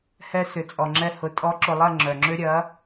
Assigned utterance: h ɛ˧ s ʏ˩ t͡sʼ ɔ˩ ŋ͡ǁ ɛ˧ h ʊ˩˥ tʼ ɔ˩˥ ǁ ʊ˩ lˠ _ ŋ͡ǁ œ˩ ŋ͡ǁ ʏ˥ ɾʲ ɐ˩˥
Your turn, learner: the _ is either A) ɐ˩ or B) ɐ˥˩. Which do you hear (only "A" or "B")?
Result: B